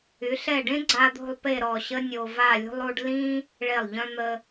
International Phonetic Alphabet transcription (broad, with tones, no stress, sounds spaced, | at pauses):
y˩˧ ɬ ɛ˧˩ ɖ ẽ˥ ɡ͡ǀ a˧ d̪ o̤˥˧ lˠ p e˥˧ ɾ ɔ˧˩ ɕ ə˥ nʲ o˧ v a˥˧ lʲ ṳ˥ lˠ u˥ ɖ l ĩ˥ | ɭ e˧˩ lˠ ʎ œ̃˧ n̪ ə˧